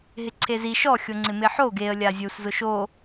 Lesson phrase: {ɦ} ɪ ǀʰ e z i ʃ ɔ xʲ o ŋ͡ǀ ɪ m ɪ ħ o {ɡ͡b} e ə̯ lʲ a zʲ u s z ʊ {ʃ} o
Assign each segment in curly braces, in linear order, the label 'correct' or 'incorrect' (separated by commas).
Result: correct, incorrect, correct